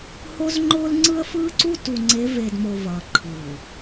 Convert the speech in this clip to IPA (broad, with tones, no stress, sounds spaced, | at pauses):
h o˦ z ŋ͡ǃ ʊː˦ l ŋ͡ǀ ɯ˦ ə̯ f ɯː˦ ǀ u˦ t u˨ ŋ͡ǀ e˨˦ v e˨ d m o˨ v ʌː˨ ǃʰ ɯː˨